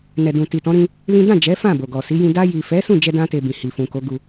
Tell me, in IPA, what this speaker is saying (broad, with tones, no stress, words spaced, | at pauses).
nɛ˨dũ˨ ti˨tɔ̃˨˦ɾĩ˧ | lĩ˦ dã˦˨d͡ʒɛ˨˦ fã˦˨bo˨ɡɔ˨ si˨˦jĩ˧ da˧ji˨fɛ˨˦ sũ˦˨d͡ʒɛ˧dã˧te˨ bĩ˨hi˨fũ˨ko˨˦ ɡu˧